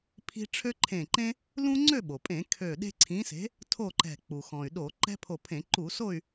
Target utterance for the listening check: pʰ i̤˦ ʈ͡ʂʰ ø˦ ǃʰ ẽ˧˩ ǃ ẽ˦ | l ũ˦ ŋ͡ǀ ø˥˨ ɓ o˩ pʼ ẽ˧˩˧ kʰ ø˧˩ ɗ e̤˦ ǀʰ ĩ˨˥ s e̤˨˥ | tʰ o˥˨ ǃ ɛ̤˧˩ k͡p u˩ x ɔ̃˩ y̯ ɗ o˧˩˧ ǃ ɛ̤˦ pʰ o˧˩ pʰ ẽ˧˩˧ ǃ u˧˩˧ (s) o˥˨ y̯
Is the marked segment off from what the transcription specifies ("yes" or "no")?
no